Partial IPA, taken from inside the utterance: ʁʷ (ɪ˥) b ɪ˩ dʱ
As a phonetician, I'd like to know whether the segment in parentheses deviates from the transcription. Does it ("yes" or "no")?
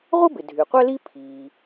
no